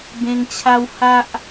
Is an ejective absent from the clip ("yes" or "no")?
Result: yes